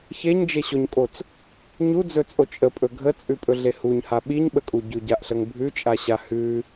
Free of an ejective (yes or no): no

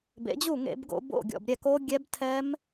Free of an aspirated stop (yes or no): no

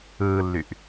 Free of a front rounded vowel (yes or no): no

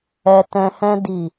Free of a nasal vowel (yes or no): no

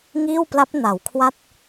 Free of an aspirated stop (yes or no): no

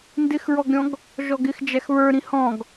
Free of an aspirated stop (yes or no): yes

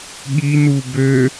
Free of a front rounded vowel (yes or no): no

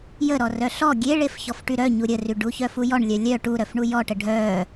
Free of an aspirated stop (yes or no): yes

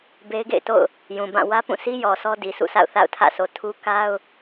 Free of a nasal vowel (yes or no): no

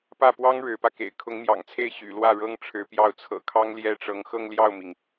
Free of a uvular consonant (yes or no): yes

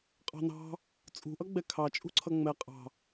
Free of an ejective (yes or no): no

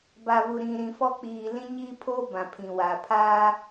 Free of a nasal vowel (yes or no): no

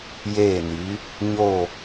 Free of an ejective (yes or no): yes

